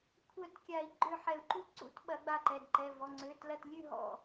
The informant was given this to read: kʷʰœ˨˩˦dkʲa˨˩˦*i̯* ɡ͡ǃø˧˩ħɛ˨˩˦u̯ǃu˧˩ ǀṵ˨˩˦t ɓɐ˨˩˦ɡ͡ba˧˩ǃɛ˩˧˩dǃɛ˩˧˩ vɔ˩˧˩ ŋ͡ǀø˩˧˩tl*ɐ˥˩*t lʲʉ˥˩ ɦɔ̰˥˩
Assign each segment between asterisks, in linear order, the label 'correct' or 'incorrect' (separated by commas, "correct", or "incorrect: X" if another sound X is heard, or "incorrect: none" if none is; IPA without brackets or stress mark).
correct, incorrect: ɐ˧˩